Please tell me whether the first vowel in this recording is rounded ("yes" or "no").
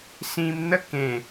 no